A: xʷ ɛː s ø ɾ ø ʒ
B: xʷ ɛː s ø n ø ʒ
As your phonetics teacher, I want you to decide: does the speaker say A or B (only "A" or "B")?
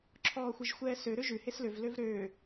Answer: A